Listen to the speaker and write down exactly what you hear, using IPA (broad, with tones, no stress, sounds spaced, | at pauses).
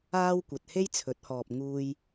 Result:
aː˥ w kʷ ɐ˨ t̚ h e˥ j t͡sʰ ɵ˨˥ t̚ h ɔː˨ p̚ ŋ uː˧ j